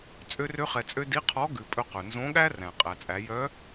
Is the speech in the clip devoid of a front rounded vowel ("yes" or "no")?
no